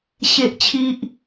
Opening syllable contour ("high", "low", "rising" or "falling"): high